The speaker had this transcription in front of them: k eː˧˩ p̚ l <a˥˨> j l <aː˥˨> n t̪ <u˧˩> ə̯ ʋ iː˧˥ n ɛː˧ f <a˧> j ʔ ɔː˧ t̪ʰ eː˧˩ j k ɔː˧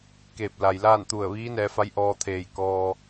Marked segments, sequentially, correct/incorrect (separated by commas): incorrect, correct, correct, incorrect